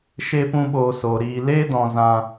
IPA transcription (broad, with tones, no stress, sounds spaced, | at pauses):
ʃ eː˦ p ũ˦ ɓ oː˧ s oː˨ ɾ iː˨ l eː˦ d ɔ̃˨ z ã˧